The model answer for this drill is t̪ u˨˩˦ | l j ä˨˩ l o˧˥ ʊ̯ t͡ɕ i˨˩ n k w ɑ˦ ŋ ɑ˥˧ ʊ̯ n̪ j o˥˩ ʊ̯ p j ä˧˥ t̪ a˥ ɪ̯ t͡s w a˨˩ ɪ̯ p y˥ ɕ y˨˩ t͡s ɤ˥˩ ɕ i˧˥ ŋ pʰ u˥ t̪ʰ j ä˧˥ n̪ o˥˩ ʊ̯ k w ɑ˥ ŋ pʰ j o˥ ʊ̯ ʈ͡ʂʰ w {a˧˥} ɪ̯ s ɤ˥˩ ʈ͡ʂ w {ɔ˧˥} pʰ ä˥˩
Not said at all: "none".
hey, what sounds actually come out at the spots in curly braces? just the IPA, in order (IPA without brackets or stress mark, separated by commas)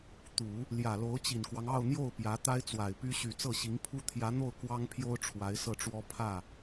a˧˥, ɔ˥